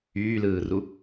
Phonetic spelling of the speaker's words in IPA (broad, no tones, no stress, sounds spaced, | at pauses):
yː l ɯː r u